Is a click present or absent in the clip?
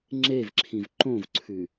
present